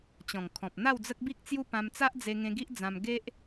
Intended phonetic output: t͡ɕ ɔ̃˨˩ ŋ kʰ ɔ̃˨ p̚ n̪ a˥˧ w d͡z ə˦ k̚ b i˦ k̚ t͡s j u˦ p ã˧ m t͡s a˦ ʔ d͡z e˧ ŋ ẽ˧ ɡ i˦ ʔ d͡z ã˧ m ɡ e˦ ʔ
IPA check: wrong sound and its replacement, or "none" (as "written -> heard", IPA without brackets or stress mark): none